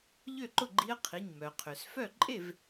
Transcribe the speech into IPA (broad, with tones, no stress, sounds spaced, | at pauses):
ʎ ø˥˩ ǃ ʊ˥˩ ɡ͡ǃ i˧˥ ə̯ qʰ i˩˧˩ ɲ m œ˩ qʰ ø˩ s f œ˥˩ ǃʼ e˥˩ v